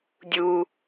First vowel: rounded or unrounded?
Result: rounded